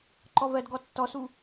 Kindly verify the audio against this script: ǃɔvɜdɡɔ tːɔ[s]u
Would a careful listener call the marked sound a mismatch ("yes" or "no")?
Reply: no